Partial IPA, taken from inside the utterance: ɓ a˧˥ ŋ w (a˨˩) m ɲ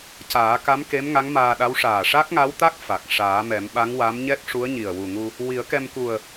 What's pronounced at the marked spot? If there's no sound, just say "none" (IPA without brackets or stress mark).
a˧˥